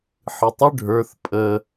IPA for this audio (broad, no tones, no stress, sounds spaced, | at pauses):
ħ ɨ tˤ ʏ ɖʱ ə˞ θ pʼ ə